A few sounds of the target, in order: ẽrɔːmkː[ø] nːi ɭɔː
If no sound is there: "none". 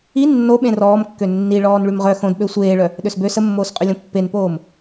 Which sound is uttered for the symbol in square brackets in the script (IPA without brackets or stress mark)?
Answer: ø